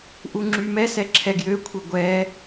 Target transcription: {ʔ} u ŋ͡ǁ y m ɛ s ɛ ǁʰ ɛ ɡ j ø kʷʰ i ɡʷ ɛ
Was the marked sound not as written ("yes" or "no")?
no